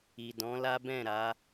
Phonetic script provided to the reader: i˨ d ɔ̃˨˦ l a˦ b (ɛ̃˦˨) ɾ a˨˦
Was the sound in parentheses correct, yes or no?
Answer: yes